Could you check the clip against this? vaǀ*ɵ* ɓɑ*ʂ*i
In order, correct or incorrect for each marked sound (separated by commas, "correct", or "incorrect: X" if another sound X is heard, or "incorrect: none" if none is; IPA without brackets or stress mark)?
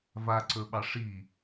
correct, correct